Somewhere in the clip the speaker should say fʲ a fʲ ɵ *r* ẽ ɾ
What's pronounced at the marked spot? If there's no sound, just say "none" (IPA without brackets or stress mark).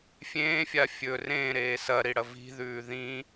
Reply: r